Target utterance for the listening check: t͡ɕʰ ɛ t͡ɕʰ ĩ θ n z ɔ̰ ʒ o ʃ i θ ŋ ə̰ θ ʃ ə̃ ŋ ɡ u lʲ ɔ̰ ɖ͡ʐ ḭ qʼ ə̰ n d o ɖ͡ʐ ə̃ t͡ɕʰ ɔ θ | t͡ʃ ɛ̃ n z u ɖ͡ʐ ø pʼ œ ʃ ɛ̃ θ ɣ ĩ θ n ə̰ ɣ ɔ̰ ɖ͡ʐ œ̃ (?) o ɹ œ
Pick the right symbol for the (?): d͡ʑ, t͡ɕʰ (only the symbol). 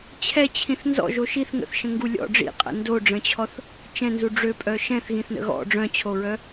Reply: t͡ɕʰ